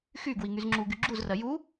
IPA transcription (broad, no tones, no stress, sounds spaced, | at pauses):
x y ɡ w i ŋ y z ŋ͡ǁ u ɡ y ɡ͡ǁ u z r ɜ j u